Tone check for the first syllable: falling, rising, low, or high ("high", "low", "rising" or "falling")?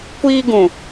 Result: high